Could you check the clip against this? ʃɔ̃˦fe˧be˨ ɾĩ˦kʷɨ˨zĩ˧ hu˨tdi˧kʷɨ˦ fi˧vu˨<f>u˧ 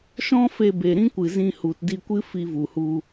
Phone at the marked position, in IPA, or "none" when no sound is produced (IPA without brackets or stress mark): h